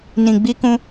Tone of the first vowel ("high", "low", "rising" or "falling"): low